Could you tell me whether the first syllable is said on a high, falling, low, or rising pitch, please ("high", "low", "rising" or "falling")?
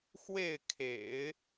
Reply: falling